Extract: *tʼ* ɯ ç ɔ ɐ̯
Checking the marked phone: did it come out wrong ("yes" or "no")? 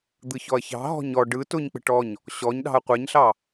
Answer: yes